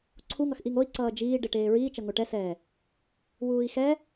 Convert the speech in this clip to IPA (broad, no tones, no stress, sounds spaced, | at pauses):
ǀʰ u ŋ ʌ x ʔ i ŋ o i̯ ǀ ʌː d͡ʒ iː ɖ e ʈ eː ɹ iː t͡ʃ ʌ ŋ o ʈ ɛ s ɛː | w uː i̯ x ɛ